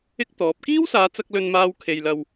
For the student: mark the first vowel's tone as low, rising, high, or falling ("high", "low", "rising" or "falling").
high